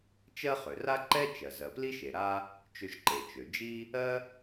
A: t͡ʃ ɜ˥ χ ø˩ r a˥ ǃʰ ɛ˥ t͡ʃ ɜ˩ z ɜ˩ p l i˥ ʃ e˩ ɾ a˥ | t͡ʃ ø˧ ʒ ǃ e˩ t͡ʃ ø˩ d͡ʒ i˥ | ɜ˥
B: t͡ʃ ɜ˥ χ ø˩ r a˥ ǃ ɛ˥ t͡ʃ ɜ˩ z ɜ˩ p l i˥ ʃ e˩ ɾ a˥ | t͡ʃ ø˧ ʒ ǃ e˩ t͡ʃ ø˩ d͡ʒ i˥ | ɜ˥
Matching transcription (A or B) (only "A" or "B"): B